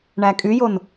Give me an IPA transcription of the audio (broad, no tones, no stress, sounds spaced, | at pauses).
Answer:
ɳ æ kʼ y j o n